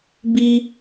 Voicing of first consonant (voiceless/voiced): voiced